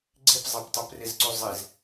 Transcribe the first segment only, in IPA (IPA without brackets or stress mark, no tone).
ɡ͡ǀ